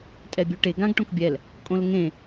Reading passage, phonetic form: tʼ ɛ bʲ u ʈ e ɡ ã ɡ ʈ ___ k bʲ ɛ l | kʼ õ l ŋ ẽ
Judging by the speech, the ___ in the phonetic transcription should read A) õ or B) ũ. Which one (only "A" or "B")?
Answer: A